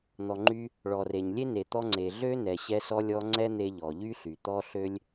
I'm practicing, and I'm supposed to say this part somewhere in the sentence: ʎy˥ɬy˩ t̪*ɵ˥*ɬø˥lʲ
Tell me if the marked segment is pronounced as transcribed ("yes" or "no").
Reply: no